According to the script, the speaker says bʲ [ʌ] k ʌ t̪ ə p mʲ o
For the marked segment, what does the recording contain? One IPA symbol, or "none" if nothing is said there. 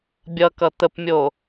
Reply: ʌ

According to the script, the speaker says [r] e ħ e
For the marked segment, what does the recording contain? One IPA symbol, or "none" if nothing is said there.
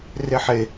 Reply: r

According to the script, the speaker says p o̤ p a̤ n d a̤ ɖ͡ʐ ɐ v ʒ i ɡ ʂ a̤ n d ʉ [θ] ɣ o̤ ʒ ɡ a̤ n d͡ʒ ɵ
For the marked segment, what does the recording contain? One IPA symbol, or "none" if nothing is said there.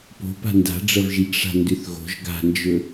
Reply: θ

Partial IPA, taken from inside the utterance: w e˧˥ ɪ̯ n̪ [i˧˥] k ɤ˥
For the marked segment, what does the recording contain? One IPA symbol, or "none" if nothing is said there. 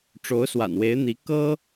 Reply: i˧˥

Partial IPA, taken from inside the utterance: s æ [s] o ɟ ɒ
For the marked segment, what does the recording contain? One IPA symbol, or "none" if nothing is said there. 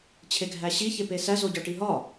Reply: z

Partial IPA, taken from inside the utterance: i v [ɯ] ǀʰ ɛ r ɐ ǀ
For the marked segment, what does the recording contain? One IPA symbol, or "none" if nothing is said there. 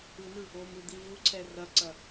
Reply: u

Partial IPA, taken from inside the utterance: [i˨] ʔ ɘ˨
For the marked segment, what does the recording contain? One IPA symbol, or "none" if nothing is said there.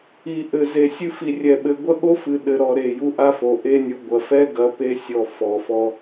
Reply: i˨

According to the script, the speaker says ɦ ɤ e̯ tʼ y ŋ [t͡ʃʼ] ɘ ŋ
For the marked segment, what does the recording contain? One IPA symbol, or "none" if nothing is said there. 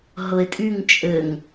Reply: t͡ʃʼ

